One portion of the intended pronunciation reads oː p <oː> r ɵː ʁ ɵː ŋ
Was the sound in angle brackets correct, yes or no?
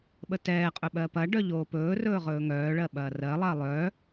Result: no